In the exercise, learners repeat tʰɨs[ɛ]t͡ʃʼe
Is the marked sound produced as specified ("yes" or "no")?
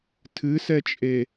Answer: yes